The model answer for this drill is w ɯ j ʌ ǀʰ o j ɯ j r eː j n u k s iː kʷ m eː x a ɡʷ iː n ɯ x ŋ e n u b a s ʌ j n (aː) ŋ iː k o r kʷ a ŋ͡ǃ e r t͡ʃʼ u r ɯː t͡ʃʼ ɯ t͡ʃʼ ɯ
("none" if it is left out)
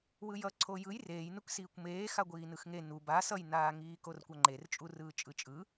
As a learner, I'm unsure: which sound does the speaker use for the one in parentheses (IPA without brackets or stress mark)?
aː